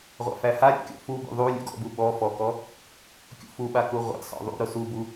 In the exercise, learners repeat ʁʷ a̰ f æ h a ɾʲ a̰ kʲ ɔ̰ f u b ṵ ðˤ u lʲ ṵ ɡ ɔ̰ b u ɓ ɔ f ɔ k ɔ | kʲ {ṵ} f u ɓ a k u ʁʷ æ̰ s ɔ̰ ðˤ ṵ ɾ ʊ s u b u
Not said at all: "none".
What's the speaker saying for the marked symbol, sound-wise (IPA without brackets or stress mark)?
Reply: ṵ